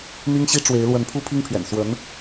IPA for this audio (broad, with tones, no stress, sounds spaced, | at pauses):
n̪ i˥ ŋ ɕ i˥ ʈ͡ʂ w e˧˥ ɪ̯ l w ə˧˥ n pʰ u˥ pʰ i˥ ŋ pʰ ɥ ɛ̰˨˩ n s w ə˧˥ n